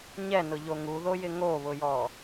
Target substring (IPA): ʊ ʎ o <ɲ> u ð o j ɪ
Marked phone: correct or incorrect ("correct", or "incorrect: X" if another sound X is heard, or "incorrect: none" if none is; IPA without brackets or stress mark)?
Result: incorrect: ŋ